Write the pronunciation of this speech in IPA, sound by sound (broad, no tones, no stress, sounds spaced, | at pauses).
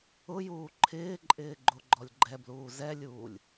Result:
ʊ j uː ǃʰ ɪː ǃʼ ɪː ɡ͡ǃ o ɡ͡ǃ ɔ lʲ ɡ͡ǃ ɛ b l uː z ɛ lʲ uː lʲ